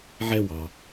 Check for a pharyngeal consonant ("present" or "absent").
present